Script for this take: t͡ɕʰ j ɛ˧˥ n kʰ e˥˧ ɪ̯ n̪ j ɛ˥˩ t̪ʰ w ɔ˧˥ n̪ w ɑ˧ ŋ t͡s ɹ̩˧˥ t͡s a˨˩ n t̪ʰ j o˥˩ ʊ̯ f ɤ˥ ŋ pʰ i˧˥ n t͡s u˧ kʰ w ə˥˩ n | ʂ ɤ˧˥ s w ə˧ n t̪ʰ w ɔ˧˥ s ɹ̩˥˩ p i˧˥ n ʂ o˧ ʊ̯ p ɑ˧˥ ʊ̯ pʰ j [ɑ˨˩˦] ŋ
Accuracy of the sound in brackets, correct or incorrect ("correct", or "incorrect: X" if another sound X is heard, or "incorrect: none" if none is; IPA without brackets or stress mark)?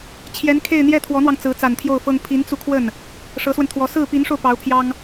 incorrect: ɑ˥